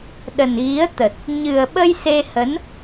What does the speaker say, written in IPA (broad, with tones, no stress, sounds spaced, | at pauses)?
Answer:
ɗ ə˨˩ n ɣ i˨˦ ə̯ t̪ ə˨˩ t̚ | ɲ ɨ˨˩ ə̯ ɓ ə˧ j s e˧ h ə˨˦ n